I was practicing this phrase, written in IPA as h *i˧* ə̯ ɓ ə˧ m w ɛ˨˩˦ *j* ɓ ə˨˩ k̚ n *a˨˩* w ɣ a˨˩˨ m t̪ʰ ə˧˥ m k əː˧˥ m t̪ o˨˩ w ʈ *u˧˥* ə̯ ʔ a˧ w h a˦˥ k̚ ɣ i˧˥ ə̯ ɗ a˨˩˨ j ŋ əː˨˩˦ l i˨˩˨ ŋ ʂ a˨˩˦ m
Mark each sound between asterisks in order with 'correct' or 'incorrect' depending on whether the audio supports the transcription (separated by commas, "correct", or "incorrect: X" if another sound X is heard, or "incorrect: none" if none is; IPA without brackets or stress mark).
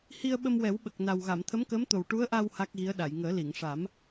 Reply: correct, incorrect: w, correct, correct